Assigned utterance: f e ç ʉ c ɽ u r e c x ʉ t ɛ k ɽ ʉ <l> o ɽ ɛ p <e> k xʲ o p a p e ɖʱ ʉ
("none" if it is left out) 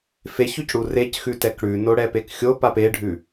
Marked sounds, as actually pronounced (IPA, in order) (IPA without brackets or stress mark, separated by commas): n, e